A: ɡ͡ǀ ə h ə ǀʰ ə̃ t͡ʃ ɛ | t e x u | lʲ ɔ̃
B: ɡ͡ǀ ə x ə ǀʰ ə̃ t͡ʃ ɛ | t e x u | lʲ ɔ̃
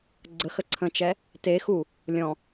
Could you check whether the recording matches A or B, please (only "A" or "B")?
B